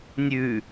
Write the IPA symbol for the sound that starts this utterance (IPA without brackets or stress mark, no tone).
nʲ